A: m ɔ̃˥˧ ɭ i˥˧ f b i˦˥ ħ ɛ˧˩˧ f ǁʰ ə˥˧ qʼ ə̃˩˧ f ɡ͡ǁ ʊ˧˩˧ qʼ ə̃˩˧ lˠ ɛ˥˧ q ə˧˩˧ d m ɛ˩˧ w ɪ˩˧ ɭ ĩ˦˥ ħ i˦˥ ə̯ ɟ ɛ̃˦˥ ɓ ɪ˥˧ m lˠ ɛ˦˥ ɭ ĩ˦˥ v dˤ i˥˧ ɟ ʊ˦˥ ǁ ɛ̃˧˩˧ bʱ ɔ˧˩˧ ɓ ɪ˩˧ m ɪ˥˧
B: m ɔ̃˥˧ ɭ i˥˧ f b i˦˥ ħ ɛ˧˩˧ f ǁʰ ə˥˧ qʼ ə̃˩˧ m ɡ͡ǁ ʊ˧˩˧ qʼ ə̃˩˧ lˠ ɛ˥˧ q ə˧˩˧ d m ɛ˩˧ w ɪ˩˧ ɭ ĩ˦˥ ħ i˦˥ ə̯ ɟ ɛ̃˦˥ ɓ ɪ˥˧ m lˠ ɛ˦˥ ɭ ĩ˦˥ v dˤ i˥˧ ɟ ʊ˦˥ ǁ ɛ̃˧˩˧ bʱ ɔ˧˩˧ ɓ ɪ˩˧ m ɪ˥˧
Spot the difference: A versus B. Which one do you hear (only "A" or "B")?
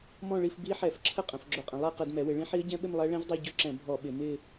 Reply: A